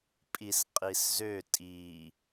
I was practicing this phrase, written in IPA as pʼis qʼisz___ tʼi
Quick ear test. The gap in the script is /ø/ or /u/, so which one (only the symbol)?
ø